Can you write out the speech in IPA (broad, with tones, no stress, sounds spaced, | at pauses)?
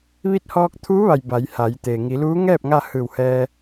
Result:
ʋ i˧˥ t̚ h ɔː˧ k̚ t̪ʰ uː˧˥ ʋ a˩ j b a˩˧ j h a˩˧ j t̪ eː˩ ŋ i˩˧ l uː˧˥ ŋ ɛː˥˨ p̚ ŋ a˥˨ h ɯː˧˩ w h ɛː˧